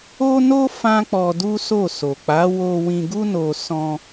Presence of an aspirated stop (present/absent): absent